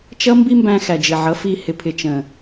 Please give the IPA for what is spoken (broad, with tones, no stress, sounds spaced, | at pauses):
t͡ʃ ʌ˦ m b i˦ m b æ̃˧ x æ˨ d͡ʒ ɪ˨ ʕ ʌ˨˦ f i˧ h ɪ˨ pʰ ɪ˨ t͡ʃ ə̃˨